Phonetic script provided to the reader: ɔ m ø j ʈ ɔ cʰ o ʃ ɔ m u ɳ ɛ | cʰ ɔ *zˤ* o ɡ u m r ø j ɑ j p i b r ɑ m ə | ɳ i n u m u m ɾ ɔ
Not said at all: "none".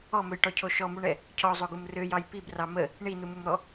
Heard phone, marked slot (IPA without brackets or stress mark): zˤ